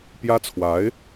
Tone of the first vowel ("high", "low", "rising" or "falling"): high